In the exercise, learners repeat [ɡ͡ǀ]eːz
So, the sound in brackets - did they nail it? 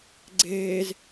yes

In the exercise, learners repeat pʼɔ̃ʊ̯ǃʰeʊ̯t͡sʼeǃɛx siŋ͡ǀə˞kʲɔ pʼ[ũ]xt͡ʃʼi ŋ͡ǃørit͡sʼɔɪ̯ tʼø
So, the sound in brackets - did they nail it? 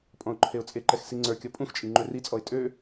yes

